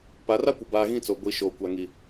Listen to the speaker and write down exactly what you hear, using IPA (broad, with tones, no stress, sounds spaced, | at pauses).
p a˨˦ r a˦ kʷ ɪ˨ b aː˦ ɣ ĩ˦ t͡s o˨ ɡʷ i˨˦ ʃ oː˨ kʷ a˨ ŋ i˨